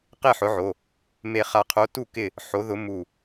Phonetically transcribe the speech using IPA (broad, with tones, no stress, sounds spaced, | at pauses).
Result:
q e˥˨ ħ ʊ˨˥ ʕ o˩˧˩ | m e˧˩ χ a˧˩ qʰ o˨˥ t u˥˨ k ɪ˥˨ | ħ o˨˥ ð ʊ˨˥ m u˧˩